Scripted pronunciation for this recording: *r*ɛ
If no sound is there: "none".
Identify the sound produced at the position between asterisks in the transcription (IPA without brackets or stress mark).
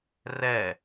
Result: r